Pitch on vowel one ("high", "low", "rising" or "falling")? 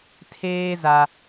high